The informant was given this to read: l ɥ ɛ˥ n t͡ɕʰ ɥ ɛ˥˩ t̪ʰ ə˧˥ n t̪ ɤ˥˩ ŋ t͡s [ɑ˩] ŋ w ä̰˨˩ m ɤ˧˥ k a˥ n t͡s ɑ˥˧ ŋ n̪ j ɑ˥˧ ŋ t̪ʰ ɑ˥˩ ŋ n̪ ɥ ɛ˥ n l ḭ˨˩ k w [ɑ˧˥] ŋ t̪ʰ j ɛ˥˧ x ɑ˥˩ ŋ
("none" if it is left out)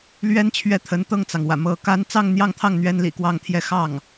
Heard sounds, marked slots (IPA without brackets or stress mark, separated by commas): ɑ˩, ɑ˥˧